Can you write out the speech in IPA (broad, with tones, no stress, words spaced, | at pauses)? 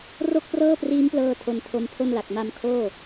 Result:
ro˥˩k̚prɤː˥˩priː˦˥mplɤː˧ tʰo˧ntʰo˧mpʰo˥˩nla˨˩k̚ ma˧mkʰoː˥˩